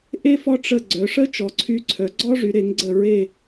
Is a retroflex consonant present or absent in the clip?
present